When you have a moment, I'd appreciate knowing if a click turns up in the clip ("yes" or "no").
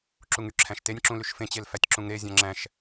yes